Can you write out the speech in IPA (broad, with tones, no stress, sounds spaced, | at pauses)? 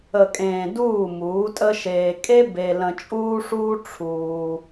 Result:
ə˨ kʼ ẽː˨ d uː˦˨ m uː˨˦ tʼ ə˦ ʃ eː˧ kʼ e˦ b e˧ l ə̃˧ t͡ʃʼ uː˦ ʂ uː˦ ʈ͡ʂʰ uː˧